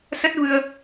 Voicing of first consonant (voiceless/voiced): voiceless